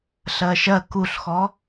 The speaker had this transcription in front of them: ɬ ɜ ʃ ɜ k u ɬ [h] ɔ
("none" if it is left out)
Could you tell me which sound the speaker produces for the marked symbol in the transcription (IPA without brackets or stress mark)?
x